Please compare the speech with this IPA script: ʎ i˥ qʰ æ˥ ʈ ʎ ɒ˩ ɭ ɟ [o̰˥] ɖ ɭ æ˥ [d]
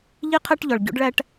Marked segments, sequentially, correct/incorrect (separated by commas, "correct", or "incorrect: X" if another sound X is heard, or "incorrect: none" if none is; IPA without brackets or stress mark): correct, incorrect: ʈ